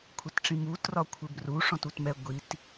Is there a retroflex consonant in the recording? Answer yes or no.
yes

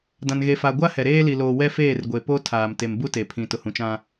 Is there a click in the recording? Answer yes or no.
no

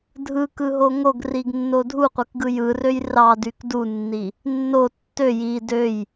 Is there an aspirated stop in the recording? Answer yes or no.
no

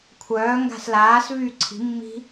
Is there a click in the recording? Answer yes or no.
yes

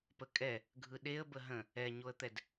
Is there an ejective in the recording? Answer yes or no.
yes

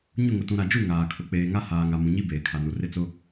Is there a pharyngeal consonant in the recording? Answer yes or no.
no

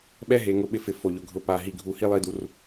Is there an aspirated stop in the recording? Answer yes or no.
no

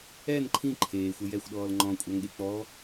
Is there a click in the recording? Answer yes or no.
yes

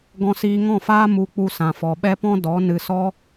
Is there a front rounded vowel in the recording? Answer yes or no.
no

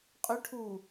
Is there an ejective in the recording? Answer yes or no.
yes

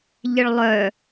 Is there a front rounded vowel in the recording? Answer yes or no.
yes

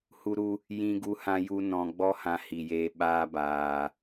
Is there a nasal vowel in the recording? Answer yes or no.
yes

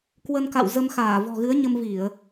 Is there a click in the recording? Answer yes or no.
no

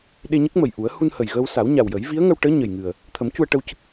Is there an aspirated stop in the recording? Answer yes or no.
yes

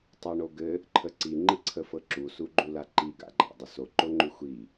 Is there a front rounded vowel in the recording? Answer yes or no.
yes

